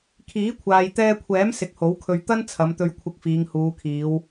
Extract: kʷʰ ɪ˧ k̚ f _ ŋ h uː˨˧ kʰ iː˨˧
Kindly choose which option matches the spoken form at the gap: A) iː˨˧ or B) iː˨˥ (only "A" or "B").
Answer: A